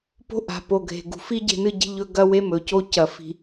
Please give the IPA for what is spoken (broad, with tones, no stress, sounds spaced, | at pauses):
p o̤˦ ʔ a̤˨ p o˨ ɡʱ e̤˨ ɡ ṳ˨ f i˦ ɟ e̤˦ n ɨ˦ ɟ i̤˦ ʎ ɵ˦ ɡ ɐ˦ w e˦ m ɵ˨ c o˦ c ɐ˨ f i̤˨